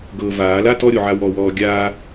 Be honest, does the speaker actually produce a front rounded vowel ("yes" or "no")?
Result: no